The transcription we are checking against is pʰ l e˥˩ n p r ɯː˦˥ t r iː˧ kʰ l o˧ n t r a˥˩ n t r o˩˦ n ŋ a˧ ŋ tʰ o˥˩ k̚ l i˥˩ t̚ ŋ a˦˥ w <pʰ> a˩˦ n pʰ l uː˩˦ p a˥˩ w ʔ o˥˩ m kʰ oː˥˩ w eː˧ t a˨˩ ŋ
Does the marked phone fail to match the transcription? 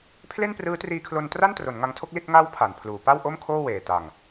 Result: no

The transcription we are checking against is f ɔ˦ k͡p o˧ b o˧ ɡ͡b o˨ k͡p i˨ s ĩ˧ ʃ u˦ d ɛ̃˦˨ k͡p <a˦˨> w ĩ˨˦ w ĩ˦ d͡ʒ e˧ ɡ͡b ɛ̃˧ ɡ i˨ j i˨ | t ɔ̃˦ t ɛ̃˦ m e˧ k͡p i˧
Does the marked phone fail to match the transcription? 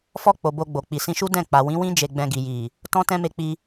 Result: yes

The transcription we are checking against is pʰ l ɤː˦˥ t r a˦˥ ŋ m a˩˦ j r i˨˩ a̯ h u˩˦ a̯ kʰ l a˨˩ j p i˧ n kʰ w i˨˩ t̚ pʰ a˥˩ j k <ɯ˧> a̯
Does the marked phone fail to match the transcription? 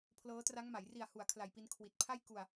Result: yes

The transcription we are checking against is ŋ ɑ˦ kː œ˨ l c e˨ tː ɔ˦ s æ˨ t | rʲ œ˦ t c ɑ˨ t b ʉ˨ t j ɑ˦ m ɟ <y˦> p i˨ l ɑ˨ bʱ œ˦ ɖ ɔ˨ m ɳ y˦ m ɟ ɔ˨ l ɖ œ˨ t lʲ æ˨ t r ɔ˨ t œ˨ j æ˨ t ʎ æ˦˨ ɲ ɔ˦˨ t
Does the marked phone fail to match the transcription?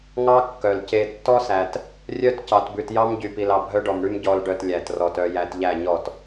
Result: yes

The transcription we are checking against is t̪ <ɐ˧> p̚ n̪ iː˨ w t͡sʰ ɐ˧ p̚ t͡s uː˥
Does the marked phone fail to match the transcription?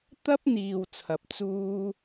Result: yes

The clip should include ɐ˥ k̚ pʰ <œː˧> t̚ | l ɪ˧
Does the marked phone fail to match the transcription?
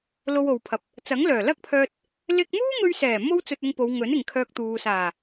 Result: no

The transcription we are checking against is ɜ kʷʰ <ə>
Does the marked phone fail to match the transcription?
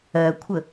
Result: no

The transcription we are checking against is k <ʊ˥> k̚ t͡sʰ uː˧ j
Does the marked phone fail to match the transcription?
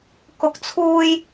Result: yes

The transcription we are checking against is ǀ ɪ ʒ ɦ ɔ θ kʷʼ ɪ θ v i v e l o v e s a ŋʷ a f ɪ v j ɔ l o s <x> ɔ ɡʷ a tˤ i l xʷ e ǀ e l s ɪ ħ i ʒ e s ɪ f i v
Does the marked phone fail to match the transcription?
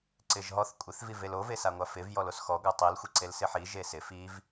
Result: no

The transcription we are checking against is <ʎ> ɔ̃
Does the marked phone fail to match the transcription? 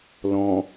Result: yes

